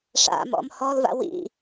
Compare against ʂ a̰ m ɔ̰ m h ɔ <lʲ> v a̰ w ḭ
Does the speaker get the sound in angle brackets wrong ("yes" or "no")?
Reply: yes